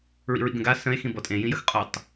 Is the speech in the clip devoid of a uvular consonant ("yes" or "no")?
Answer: no